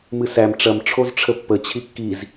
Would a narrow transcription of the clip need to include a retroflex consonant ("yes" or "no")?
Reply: yes